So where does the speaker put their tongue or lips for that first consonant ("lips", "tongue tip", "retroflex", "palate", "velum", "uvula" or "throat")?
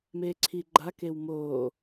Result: lips